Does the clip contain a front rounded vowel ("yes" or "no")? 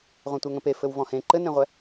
no